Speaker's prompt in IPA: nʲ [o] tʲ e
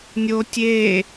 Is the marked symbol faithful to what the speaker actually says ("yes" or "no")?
yes